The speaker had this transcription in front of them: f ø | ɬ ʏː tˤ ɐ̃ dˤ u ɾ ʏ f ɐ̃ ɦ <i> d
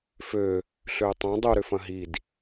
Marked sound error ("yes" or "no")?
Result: no